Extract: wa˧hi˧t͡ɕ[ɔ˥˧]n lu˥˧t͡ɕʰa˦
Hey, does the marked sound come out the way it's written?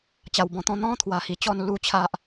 yes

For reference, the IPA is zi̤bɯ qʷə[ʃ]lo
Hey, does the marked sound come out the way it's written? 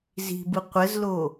no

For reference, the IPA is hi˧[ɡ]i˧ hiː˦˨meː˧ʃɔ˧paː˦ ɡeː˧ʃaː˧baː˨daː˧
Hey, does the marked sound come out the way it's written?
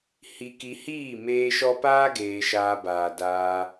no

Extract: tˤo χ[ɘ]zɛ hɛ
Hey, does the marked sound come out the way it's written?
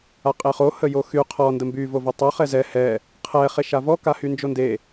no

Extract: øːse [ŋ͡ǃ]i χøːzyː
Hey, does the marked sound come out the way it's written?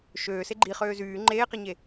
no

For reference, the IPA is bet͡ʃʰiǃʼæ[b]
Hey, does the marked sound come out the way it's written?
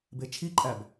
yes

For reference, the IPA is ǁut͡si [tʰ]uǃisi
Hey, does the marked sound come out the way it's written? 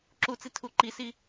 yes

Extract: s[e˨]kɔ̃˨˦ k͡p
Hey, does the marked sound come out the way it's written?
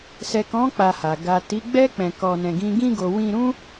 no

